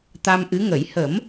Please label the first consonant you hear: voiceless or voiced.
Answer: voiceless